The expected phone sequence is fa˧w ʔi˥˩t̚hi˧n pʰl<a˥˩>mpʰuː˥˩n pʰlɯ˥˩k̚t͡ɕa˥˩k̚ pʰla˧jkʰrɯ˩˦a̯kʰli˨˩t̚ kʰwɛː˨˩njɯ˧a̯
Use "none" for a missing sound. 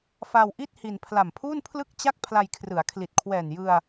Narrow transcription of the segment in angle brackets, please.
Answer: a˨˩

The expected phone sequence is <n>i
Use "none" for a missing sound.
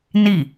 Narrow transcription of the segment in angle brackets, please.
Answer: n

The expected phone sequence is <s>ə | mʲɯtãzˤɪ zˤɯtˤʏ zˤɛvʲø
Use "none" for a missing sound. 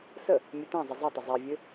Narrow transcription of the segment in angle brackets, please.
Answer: s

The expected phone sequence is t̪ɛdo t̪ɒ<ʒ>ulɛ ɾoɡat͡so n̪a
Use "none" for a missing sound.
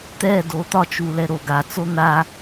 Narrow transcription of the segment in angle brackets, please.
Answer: t͡ʃ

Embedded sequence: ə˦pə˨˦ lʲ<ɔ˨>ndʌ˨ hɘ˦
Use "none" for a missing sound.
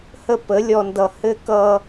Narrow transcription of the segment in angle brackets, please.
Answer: ɔ˨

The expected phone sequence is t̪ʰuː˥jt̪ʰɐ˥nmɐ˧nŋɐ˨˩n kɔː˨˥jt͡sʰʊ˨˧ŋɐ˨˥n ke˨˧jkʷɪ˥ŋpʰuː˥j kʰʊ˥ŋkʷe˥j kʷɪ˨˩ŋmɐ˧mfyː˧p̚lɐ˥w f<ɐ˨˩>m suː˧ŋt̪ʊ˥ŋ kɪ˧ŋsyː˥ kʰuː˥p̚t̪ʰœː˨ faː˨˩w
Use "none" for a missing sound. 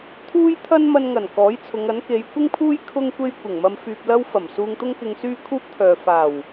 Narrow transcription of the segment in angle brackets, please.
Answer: ɐ˨˩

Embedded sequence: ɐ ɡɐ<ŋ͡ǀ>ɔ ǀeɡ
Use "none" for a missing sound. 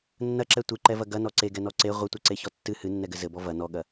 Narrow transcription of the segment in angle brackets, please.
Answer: n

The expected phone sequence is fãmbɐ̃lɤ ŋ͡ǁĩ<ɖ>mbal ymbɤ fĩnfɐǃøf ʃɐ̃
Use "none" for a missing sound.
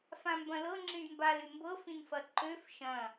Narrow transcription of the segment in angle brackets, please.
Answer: ɖ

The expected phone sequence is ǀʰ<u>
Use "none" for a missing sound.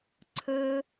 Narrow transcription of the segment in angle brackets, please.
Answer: ɯ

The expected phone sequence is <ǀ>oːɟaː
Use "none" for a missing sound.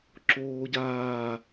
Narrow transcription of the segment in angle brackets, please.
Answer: ǁ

